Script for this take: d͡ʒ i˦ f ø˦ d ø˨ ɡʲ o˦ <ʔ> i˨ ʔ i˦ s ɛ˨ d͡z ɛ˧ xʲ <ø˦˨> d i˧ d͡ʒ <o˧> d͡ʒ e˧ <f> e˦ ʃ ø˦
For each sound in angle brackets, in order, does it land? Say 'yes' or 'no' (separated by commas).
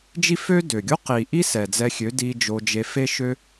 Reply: no, no, yes, yes